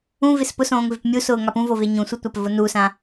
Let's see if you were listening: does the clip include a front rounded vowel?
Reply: no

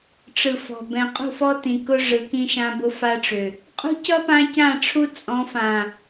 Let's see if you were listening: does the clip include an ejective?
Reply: yes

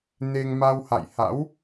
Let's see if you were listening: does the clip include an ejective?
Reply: no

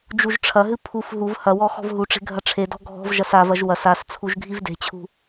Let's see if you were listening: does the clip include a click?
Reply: no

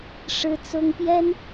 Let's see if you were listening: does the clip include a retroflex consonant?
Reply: yes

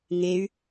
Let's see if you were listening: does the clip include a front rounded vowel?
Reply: yes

